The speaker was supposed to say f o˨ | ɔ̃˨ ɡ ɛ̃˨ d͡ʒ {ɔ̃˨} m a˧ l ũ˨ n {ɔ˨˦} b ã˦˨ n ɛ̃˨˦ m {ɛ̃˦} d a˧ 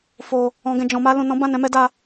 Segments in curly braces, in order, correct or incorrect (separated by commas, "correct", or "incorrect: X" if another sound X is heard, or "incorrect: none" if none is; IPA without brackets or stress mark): correct, incorrect: ɔ̃˨˦, incorrect: ɛ˦